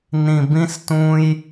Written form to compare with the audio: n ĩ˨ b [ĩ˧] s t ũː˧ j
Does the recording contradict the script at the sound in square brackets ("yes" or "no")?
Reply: no